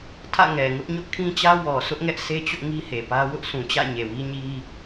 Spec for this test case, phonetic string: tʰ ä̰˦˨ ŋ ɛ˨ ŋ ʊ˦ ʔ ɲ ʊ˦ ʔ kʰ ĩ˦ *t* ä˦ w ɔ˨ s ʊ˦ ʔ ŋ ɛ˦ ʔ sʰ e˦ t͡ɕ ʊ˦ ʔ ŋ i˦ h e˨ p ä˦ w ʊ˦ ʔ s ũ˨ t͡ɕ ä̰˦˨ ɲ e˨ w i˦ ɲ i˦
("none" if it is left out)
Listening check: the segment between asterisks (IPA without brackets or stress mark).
t͡ɕ